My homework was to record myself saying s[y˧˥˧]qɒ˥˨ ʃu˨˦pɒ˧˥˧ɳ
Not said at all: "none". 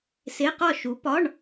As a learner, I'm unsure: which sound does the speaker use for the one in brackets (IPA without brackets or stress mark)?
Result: e˧˥˧